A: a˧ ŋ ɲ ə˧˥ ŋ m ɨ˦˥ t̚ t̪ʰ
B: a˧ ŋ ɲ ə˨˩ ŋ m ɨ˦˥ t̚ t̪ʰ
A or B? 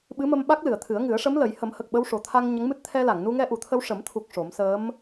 A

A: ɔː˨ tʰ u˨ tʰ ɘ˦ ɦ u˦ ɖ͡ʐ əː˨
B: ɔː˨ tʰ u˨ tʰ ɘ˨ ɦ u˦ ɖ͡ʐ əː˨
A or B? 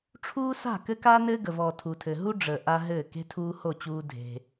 B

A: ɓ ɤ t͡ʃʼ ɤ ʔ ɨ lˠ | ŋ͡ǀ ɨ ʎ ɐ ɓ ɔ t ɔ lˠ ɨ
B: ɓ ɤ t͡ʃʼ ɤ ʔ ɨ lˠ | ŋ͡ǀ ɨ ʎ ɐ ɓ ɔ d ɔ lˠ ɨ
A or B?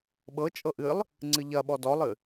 B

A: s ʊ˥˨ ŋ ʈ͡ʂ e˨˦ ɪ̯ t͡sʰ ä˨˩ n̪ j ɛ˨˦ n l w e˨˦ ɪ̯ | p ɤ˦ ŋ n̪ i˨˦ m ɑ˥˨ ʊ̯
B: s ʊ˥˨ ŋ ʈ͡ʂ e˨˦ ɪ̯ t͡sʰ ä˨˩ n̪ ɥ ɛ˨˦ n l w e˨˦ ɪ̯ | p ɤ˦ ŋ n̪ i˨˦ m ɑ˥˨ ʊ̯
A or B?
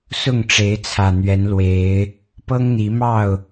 B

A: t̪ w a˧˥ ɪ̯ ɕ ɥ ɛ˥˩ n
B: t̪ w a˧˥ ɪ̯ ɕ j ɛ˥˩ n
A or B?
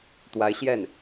B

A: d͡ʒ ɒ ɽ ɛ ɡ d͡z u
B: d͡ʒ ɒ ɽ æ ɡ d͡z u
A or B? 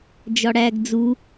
B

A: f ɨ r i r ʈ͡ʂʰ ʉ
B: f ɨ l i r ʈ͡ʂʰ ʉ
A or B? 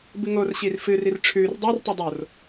A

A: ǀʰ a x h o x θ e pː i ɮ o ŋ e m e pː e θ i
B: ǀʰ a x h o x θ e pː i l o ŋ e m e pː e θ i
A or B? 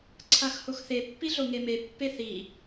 A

